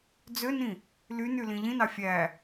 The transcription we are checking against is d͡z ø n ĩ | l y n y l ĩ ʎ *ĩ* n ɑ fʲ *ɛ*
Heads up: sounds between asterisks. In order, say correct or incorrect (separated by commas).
correct, incorrect